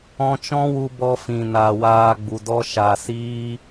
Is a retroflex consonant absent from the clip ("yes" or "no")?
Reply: yes